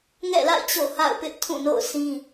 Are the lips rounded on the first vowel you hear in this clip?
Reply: no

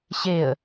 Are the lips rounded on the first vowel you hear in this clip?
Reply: no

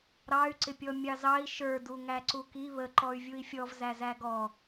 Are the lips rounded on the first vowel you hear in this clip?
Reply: no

